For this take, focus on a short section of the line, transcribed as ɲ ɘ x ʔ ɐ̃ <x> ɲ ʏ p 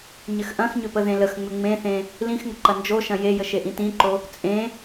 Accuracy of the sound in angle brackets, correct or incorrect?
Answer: correct